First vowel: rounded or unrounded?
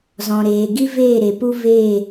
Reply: rounded